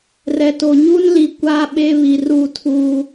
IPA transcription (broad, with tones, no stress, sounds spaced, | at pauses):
r ɛ˨ t o˨ ɲ u˦ n l i˨ kʷ a˦ ɓ e˦ β i˨ r u˦˨ tʰ uː˦